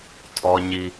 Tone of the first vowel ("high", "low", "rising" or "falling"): high